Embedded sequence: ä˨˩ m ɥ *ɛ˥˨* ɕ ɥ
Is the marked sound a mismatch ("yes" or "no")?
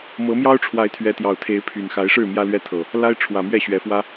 no